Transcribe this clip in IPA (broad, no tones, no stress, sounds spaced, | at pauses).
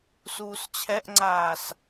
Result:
s uː s t͡ɕʰ ɛ ʔ ŋ͡ǀ aː s